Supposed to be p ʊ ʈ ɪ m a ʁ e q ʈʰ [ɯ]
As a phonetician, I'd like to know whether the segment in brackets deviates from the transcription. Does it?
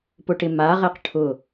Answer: yes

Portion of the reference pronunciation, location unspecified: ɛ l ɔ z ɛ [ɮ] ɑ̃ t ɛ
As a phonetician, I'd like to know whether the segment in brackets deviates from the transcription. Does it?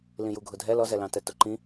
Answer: yes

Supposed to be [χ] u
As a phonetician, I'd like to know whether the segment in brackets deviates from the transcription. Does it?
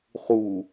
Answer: no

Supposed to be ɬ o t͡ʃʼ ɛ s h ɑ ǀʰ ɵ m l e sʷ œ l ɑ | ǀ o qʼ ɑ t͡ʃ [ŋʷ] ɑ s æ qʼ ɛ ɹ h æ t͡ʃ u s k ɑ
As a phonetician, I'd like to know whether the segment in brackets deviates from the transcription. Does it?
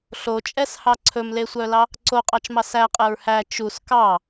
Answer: yes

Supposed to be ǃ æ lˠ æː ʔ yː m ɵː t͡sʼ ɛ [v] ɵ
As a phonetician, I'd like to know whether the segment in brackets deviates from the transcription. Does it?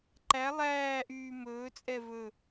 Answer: no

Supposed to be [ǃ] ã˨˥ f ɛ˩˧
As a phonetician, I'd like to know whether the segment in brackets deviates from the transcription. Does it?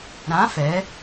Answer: yes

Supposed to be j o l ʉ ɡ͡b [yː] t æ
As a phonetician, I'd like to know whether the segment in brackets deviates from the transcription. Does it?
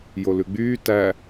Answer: no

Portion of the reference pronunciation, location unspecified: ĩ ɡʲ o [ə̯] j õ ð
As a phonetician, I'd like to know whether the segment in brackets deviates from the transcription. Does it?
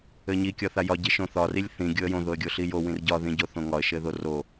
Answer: no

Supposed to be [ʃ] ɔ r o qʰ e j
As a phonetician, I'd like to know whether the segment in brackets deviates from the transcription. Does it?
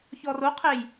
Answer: yes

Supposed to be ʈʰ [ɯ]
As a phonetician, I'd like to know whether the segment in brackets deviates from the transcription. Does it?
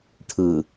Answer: no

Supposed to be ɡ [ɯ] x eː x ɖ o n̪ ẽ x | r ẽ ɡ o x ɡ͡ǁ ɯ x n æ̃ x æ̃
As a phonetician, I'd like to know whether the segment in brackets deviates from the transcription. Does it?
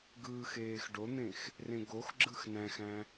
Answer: yes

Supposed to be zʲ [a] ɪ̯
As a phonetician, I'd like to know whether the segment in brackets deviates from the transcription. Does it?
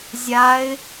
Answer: no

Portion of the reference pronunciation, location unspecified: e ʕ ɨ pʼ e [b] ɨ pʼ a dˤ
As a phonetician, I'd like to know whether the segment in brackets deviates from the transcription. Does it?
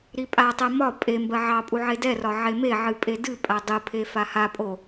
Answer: yes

